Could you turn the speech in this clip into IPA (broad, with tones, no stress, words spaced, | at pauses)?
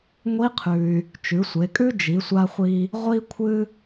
ŋʷi˧˥qʰʉ˩y̯ | t͡ʃʉ˩˧sʷe˩˧kʼʉ˥ d͡ʒi˩˧sʷa˧χʷi˧ | ʁʷi˥ kʷʰɨ˥